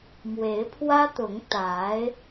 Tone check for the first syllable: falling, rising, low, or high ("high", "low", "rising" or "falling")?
rising